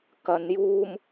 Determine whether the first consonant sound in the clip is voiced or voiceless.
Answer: voiceless